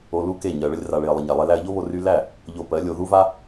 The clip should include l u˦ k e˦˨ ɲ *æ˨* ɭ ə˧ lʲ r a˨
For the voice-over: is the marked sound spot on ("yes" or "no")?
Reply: no